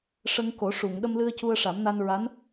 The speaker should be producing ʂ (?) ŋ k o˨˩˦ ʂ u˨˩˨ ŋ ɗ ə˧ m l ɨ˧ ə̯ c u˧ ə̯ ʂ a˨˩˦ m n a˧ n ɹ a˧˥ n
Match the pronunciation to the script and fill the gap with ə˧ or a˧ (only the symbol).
ə˧